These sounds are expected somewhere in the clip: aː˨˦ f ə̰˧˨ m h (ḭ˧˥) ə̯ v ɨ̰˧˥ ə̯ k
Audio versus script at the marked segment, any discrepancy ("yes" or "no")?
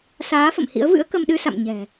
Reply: no